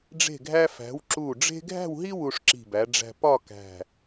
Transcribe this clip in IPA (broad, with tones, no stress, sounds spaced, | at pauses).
ɖ͡ʐ e̤˧˩ ɡʱ æ˧ f æ̤˩˧ w ǁ u˧˩ ɖ͡ʐ e̤˥ ɡʱ æ̤˥˧ w ɦ i˥ w u˧ ʂ ǁ i̤˧˩ b æ˩˧ ɖ͡ʐ æ̤˧ p ɒ˥˧ k æ̤˧˩